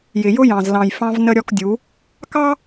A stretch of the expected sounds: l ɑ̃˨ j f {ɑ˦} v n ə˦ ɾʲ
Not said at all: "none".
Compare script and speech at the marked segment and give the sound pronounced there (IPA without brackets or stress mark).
ɑ̃˦